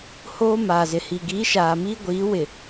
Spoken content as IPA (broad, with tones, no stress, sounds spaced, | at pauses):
h oː˦ m aː˨ z ɪ˨ h i˨ ɡ i˨˦ ʃ aː˨ m iː˦ ɡʷ iː˨˦ w ɪ˨